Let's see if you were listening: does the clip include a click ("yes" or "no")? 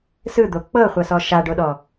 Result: no